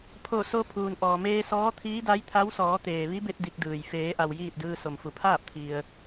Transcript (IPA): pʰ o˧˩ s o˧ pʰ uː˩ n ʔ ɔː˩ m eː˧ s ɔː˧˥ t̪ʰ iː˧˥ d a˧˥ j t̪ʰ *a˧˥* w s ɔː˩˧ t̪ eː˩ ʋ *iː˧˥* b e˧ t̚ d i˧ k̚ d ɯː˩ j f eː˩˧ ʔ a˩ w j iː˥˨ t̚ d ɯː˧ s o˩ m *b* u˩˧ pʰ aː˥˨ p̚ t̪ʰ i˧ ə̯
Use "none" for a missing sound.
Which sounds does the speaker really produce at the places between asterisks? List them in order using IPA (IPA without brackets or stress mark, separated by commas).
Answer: a˧˥, i˧˥, f